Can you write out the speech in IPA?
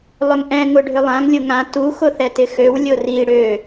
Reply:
lˠʏŋʔɛ̃ ŋʊɖʱʏlˠãŋ lʲʊŋã tu xʊθɛtɪxøw lʲʊri ɽø

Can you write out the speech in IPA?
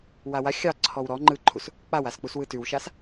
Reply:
wawa xʲɑ ǀʰɔwɾɔ ŋ͡ǃɯ ǃʰus | k͡pawask͡pus wɯtʉwʃas

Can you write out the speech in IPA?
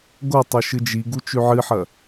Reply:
ɡotˤɵ ʃɨd͡ʒiɡu t͡ʃʉʕɨħɐ

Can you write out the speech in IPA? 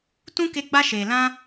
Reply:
tũ˦ke˧ ɡ͡ba˦ʃeː˨lã˦

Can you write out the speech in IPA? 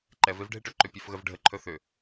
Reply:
ǃɛvevɖʱeʈɵ ǃʏpʲɛfɣəvɖʱə ǃʰɵθʏ

